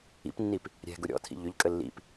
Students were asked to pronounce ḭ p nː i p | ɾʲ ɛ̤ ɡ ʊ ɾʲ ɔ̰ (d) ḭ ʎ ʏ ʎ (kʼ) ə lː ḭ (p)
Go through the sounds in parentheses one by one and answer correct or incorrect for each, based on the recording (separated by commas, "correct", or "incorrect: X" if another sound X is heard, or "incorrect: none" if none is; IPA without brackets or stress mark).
incorrect: tʰ, correct, correct